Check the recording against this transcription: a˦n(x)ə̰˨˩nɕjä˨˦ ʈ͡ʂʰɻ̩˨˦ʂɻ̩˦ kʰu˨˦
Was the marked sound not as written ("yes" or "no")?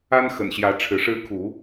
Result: no